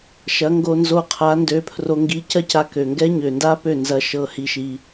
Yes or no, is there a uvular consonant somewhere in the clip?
yes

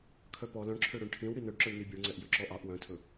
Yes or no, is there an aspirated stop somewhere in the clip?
yes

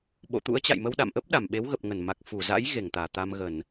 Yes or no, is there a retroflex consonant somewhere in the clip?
no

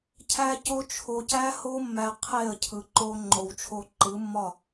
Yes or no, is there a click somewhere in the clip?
yes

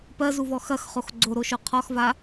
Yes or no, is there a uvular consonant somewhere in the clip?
yes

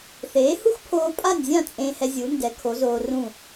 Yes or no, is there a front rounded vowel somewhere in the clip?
no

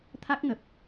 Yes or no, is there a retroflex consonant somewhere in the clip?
no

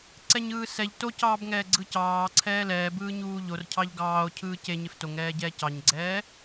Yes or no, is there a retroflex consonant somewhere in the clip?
no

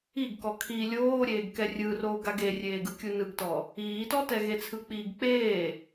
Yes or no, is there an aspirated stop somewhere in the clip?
yes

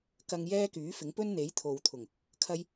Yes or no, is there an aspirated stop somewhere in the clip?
yes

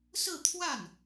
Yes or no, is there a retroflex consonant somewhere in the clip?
no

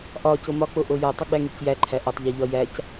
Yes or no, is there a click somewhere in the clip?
yes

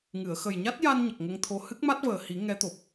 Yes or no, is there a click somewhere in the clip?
no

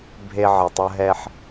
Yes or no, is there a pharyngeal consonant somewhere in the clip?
yes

